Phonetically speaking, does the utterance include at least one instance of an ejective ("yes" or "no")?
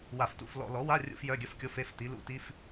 no